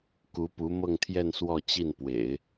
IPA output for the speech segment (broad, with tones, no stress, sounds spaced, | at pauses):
k u˧˥ p u˧˥ m ɤ˥˧ ŋ t̪ʰ j ɛ˥˧ n s w ɔ˥˧ t͡ɕ i˥˩ n p w ḛ˨˩˦ ɪ̯